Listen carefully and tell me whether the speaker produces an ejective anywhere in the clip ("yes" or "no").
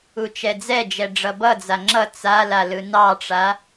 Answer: no